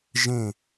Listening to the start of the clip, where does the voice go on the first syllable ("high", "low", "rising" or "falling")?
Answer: falling